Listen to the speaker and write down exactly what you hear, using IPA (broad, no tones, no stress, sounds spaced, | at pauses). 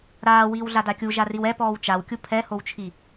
ɾ aː w iː w ɮ a d a kʲ u ʒ a r i w ɛ p ɔː w t͡ʃ a w kʲ u pʰ ɛ h o w t͡ʃʰ i